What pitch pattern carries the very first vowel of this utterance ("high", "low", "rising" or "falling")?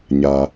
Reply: high